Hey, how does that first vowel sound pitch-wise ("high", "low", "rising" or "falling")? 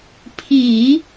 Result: low